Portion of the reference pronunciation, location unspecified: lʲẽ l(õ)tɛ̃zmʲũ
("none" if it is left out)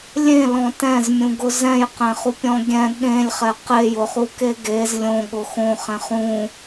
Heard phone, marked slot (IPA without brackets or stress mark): ɔ̃